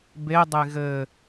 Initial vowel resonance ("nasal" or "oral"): oral